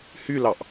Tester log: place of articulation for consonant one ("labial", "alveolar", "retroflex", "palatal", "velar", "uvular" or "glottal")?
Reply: glottal